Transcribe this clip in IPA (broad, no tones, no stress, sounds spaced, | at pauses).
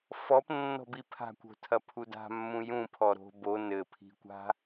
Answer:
f ɔ p nː ɔ̤ b i pʰ a̤ kʷ o̤ tʰ ɐ pʰ u d a̤ mː ũ j ũ pʰ ɔ ɾ o̤ b o n ɘ pʰ i̤ kʷ a̤